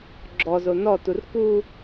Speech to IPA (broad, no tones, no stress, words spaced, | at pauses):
ɡ͡ǁɔzo nɔtur ku